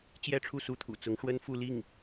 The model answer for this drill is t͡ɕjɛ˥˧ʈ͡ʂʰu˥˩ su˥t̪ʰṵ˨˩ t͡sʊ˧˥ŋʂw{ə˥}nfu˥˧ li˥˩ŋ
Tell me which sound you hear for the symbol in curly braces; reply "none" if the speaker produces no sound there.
ə˥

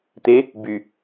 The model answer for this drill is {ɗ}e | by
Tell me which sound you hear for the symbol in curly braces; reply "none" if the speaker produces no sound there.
t̪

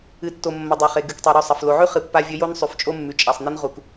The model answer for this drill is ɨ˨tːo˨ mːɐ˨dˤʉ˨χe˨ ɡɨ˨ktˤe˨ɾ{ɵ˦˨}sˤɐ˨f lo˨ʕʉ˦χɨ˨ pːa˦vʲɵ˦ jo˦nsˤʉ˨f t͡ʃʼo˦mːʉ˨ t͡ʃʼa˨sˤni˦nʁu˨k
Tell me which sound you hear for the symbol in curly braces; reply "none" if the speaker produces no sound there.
ɵ˦˨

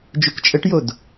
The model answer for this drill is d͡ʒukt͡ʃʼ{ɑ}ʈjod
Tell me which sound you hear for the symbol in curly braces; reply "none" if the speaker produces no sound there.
ə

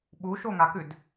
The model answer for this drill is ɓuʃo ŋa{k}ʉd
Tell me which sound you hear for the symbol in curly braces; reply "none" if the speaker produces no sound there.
k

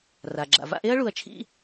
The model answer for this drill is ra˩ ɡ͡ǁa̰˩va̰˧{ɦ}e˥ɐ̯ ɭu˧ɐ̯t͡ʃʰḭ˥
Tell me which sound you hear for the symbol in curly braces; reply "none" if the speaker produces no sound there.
ʔ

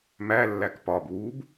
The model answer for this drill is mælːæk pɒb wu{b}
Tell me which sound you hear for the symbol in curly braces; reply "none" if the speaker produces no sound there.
b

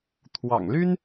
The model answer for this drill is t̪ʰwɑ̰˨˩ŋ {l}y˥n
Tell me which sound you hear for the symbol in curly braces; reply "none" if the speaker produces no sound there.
l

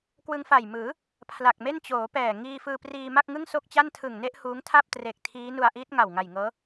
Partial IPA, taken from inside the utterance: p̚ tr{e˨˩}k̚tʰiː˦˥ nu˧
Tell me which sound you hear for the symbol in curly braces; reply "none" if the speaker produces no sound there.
e˨˩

